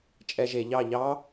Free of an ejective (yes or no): no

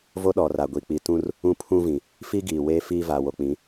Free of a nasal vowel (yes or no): no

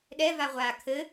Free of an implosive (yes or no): no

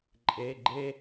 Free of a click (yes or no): no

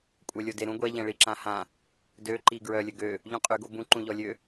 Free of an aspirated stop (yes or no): yes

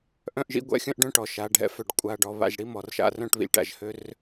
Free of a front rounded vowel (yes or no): no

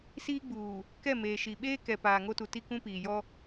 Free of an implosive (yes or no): no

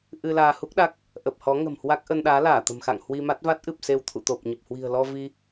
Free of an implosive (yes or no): no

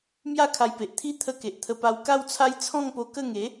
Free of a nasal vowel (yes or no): no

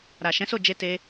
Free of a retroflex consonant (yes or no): yes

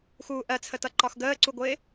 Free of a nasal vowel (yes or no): yes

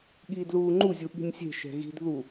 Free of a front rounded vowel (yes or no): yes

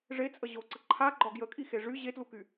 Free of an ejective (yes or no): no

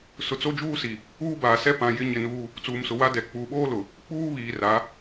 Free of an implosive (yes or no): no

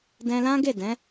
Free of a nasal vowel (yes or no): no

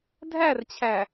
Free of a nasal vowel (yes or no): yes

